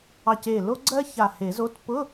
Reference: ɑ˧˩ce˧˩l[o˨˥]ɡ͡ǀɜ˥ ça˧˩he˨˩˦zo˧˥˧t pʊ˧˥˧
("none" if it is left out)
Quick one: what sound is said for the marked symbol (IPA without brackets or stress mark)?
o˥